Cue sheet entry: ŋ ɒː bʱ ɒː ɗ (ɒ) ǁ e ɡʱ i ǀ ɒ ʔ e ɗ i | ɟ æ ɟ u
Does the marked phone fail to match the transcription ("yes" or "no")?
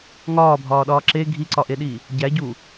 yes